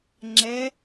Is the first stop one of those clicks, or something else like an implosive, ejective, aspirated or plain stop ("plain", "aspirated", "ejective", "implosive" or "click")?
click